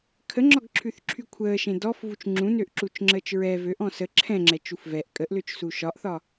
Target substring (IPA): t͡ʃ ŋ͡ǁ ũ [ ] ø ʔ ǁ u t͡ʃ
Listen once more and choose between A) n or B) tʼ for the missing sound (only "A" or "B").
A